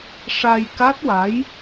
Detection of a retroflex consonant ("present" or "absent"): present